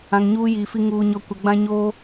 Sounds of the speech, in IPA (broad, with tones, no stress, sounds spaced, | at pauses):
ã˨ ŋ ɲ uː˦ j iː˨ f i˦ ŋ uː˨ ɲ ɔ˨ kʷ ɛ˨ ɡ͡b ã˦ ɲ oː˦